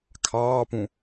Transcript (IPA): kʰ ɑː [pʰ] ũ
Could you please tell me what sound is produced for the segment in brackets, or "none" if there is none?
p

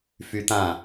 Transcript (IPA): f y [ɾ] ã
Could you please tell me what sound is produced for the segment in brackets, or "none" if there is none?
t̪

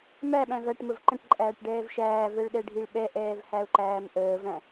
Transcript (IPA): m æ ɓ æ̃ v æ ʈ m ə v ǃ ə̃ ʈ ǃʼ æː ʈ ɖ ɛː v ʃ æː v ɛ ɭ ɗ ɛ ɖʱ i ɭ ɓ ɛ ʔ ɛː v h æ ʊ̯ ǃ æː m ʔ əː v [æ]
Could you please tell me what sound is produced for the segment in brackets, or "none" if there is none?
æ̃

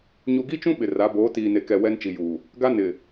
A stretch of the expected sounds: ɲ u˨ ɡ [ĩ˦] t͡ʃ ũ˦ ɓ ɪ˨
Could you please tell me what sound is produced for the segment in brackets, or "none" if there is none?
i˦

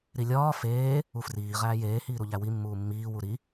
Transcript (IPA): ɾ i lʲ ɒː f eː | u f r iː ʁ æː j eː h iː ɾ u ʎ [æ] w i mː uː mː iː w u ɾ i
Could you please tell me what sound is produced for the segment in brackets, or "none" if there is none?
æ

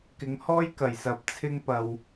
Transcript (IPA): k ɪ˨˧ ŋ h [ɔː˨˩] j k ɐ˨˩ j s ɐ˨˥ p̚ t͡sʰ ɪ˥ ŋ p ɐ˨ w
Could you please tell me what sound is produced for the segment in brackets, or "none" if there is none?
ɔː˥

